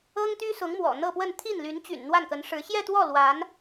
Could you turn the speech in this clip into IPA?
ɤ˥ŋt̪y˥sʊ˧˥ŋmwɔ̰˨˩ n̪ɤ˥˧pwə˥˧n t̪ʰi˥˩n ly˧˥nt͡ɕy̰˨˩n n̪wa˥˩nkə˧˥nʂɻ̩˧˥ ɕjɛ˥˧t̪wɔ˥˩ lwa˧˥n

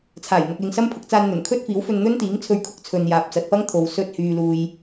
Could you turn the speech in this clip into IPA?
t͡sʰaː˨˩j n̪ɐ˨k̚lɪ˨ŋ sɐ˥m pʰʊ˨˥k̚t͡saː˧nn̪ɵ˨˩n kʰɵ˥t̚fiː˨˥wfɵ˧nn̪ɵ˥n t̪iː˨˥ŋt͡sʰɵ˧ɥ kʰʊ˥k̚t͡sʰɵ˨n jaː˨p̚t͡sɐ˨t̚pɐ˥ŋ t̪ʰo˨wsɵ˧t̚ hyː˧luː˧j

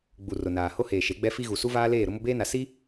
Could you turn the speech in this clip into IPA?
ɡ͡bu˨rʊ˨naː˨ ho˦heː˨ʃe˨˦ɡ͡bɛ˦ fi˦ɣu˨ su˦vaː˦leː˦˨ ɾʊ˦mʊ˦beː˦na˨ si˦

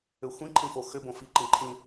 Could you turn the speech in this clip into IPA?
ʏxʷĩ ǃʰĩfoxʏ bõfi ǃĩǃʰĩ

